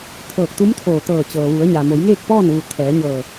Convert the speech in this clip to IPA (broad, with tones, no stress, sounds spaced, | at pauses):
t̪ʰ ɤː˧˩ k̚ t̪ u˧˥ m t̪ʰ oː˧˩ t̪ ɤː˧˩ t͡ɕ ɤː˩ ʋ u˩˧ ə̯ ɲ a˩ m o˩˧ j ŋ eː˥˨ k̚ p ɔː˥˨ n ʋ u˧˩ t̪ʰ ɛː˩˧ ɲ ɤː˧˩